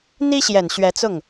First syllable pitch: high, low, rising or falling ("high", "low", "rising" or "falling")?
high